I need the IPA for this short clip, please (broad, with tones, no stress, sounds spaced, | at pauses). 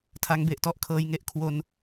tʰ a˦˥ ŋ b e˨˩ ʔ t ɔ˥˩ ʔ kʰ ɤː˧ j ŋ e˥˩ ʔ kʰ w o˧ n